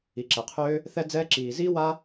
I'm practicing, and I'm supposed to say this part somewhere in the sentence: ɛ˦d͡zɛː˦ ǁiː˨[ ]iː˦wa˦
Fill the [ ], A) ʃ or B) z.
B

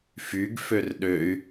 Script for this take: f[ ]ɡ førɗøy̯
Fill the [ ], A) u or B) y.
B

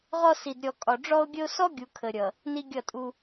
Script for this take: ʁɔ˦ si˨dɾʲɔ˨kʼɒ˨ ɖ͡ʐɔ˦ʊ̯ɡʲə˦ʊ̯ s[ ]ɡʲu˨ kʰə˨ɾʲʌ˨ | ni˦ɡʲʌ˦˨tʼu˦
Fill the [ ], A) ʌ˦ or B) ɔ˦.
B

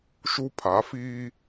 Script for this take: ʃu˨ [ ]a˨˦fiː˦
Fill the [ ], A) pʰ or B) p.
A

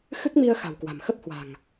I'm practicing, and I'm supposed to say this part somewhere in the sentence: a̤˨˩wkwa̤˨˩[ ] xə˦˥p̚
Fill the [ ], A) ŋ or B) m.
B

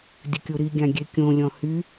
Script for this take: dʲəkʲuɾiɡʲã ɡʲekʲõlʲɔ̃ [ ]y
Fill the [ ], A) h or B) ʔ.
A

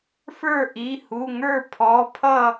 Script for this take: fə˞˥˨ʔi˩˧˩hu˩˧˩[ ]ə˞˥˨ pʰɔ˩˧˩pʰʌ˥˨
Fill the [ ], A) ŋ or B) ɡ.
A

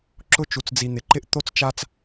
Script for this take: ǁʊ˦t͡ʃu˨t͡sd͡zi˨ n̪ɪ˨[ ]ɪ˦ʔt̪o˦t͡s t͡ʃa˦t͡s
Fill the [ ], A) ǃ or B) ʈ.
A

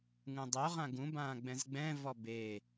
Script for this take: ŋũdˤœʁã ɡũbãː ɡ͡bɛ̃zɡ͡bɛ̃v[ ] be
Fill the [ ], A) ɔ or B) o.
A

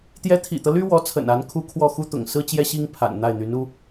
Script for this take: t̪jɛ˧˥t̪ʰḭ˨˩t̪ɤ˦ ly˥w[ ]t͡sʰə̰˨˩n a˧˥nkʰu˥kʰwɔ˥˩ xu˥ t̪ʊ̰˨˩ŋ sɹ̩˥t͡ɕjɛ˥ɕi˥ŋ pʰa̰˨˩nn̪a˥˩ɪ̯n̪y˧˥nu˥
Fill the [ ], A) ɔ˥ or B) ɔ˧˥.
B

